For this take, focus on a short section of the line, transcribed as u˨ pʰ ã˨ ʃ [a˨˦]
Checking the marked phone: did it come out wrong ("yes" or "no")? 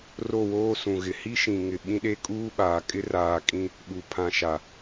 yes